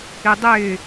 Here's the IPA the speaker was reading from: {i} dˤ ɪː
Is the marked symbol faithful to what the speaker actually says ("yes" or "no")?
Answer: yes